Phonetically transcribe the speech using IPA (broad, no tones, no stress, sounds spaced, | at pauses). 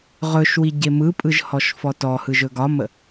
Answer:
ʁ ɵ ʃ w i ɟ e m ɯ pʼ ɯ ʒ h ɔ ʃ f ɔ t ɔ h ɯ ʒ ɵ ɡ ɒ m ə